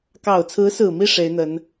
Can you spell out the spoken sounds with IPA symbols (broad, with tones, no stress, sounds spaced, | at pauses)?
k ɑ˨˩ ʊ̯ t͡sʰ ɹ̩˧˥ s ɹ̩˨˩ m i˥˩ ʂ e˧˥ ɪ̯ n̪ ə˧˥ n